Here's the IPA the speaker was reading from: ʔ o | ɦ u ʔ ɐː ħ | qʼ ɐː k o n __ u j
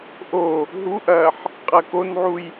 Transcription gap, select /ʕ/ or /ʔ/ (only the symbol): ʕ